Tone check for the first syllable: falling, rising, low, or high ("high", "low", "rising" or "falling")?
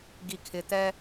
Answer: low